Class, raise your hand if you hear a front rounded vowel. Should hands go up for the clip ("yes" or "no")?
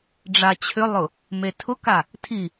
yes